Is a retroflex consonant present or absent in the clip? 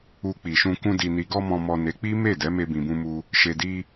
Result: absent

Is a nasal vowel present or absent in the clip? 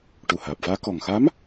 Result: absent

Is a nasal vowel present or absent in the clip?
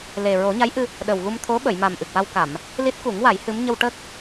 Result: absent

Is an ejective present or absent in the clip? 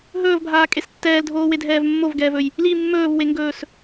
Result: present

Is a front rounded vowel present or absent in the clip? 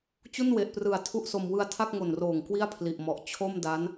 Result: absent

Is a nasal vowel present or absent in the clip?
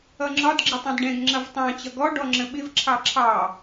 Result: present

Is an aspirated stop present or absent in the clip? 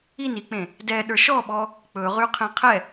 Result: present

